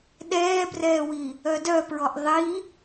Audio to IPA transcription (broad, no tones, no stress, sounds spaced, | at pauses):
ɗ ɛː b r ɛː w i | œ d œ p ɹ ɔ ʔ ðˤ i